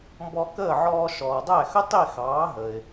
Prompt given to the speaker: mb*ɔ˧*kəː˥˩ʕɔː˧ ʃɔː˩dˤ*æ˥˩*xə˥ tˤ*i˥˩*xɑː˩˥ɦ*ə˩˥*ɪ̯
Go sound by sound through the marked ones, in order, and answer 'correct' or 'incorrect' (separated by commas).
correct, correct, correct, incorrect